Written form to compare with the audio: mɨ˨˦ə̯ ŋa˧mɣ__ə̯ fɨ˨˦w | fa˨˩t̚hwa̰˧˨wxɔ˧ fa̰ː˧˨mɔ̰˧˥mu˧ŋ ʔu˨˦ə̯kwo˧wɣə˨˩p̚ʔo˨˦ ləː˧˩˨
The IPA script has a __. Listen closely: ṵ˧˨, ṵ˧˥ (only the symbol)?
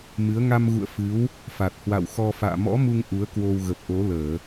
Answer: ṵ˧˨